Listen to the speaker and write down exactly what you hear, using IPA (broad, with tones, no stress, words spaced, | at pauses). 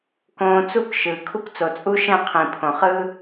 kõː˧t͡su˦k ʃɯː˨kʰu˦kt͡so˨ t͡sʼu˦ʃɛ̃˦˨qʰĩ˨pʰõ˨ χɯ˦